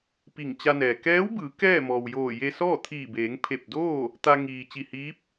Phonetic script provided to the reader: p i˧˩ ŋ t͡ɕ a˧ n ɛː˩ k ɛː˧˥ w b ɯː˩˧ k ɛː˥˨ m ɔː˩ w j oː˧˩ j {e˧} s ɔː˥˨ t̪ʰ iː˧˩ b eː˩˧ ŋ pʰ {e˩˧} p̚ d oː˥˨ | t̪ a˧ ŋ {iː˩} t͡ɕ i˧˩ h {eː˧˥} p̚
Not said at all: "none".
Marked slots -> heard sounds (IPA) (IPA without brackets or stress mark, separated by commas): e˧, e˧˩, iː˩, iː˧˥